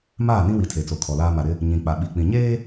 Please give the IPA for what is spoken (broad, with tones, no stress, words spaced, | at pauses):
maː˦˨nĩ˦wi˨ tʰe˨t͡so˨kʰɔ˨laː˦ ma˨ɾɪ˦ | ɲĩ˨k͡pa˨ɓi˨k͡pĩ˨ ɲeː˦